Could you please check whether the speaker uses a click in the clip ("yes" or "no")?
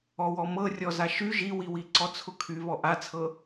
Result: yes